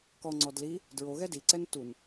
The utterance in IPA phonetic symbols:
kɔŋ͡ǀɔ dli | dɹoɣɛ diǀɛn tun

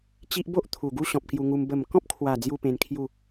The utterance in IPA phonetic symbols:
t͡ɕi˦ʔ bo˦ʔ t̪ʰu˨˩ɡu˥˧ ɕɔ̃˨p̚kju˧ŋu˧m bə˨˩mkɔ̃˦p̚kʰwa˨˩ d͡zju˥˧pẽ˧nkʰju˥˧

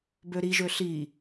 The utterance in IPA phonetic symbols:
bøɾi ʒøɬi

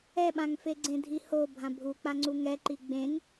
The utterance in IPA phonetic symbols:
ɛɓãŋfe ɡ͡ǀẽdʱiho bʱãbʱuk͡pa ŋ͡ǀuŋɛǃi ɡ͡bẽŋ

